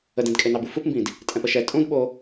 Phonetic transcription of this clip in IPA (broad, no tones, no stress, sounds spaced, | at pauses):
ə d ɛ̃ d kʼ e n ɑ b u f u p m b ĩ d | tʼ ɛ̃ p ə ʃ ɛ tʼ ũ d ɓ o